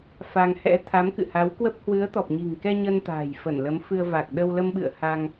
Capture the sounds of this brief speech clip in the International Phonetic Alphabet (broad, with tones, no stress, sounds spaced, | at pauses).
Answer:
f a˧ ŋ h ɛ̰˧˥ t̪ʰ a˨˦ m k ɨ̰˧˨ h a˨˦ w k w ə˦˥ p̚ h w ɨ˨˦ ə̯ t̪ ɔ˨˩ p̚ ɲ i̤˨˩ ŋ k ɛ˧ ɲ ə˧ n t̪ a̤ː˨˩ j f ə˧˩ n l ə˨˦ m f ɨ˧ ə̯ v a˨˩ k̚ ɗ ə˧ w l ə˧ m ɓ ɨ̰˧˨ ə̯ h a˧ ŋ